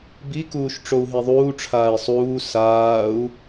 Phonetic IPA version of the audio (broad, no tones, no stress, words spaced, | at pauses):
bikuːʃ ʈ͡ʂou̯ɦiðˤuːʈ͡ʂʰaːi̯ sˤuː saːu̯